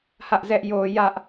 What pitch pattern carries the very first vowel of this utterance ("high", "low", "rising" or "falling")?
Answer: high